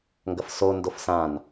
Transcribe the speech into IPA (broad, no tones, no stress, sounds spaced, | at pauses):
ŋ ɡ ɐ f s o n d o f s ã n